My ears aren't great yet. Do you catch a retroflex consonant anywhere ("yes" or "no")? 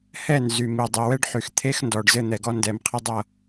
yes